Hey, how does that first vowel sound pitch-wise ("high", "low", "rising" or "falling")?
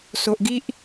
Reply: low